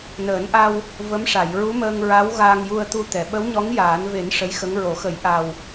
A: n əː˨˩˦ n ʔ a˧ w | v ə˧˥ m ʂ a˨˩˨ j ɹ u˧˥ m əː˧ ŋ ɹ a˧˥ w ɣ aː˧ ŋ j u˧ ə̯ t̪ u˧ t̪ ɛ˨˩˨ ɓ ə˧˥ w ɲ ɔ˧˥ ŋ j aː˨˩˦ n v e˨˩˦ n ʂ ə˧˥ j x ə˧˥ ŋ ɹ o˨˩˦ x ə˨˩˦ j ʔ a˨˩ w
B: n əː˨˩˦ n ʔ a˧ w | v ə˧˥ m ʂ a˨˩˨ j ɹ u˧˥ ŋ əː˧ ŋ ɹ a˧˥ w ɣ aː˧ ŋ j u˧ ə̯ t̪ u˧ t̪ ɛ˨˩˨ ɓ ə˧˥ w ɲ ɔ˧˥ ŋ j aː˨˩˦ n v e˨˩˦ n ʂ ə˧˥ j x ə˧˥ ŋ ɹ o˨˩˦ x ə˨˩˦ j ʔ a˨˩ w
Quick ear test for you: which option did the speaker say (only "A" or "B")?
A